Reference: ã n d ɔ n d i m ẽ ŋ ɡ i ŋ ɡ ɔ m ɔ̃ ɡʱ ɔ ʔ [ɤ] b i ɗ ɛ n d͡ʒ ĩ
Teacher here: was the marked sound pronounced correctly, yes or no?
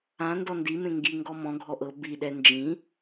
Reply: yes